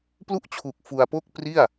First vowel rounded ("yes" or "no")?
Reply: yes